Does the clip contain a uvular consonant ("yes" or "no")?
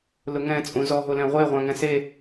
yes